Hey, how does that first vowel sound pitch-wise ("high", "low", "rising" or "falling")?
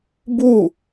falling